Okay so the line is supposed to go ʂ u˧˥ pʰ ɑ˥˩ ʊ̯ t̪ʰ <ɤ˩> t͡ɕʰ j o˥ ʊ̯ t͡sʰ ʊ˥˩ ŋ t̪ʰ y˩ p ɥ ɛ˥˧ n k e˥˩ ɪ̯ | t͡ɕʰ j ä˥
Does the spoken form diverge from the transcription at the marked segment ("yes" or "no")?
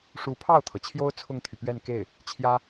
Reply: no